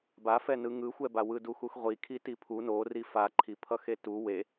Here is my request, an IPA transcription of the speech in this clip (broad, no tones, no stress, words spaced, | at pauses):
bafɛ nɯŋɯxʷɛba wɯduxuxʁʷi kʰitipʰu nori faǃʰipʰʌxe tu we